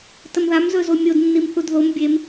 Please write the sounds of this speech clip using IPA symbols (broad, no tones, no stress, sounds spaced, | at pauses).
t ə m ð a m z ɵ z o mʲ o d nː i m θ u d ð o m bʲ e m